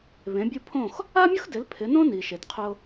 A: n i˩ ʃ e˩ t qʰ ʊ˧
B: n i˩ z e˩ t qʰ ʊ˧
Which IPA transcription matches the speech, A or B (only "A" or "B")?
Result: A